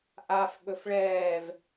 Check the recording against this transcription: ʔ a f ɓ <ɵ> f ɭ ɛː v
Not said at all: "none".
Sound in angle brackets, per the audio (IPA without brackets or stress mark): ɵ